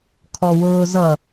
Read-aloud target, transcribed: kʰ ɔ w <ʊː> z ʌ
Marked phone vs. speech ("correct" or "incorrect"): correct